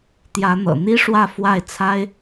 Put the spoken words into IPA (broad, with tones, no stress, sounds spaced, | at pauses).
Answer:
t̪ j ä˧˥ n̪ ɤ̰˨˩ n̪ i˥ ʂ w ä˥˧ f w a˥˩ ɪ̯ t͡sʰ a˥ ɪ̯